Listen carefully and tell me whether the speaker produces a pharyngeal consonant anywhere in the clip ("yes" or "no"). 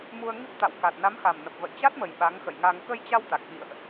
no